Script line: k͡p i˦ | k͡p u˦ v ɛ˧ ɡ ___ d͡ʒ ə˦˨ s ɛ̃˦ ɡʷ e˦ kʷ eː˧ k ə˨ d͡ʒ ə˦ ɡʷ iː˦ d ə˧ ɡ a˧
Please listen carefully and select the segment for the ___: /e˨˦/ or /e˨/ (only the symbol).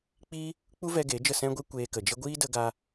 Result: e˨˦